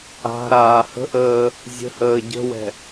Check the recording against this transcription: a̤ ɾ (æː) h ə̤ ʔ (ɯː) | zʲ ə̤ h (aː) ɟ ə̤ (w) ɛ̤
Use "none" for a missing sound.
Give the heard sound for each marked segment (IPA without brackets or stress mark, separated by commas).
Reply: aː, əː, əː, w